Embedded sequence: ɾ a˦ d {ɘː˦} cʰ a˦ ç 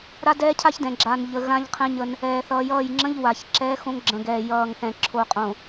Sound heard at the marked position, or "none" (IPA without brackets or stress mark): ɛː˦